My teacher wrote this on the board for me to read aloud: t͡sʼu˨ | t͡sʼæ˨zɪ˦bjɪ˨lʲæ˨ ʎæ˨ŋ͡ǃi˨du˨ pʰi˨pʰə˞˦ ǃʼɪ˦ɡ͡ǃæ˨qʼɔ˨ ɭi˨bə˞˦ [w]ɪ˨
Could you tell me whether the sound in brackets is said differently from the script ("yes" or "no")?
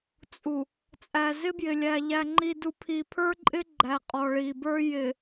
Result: yes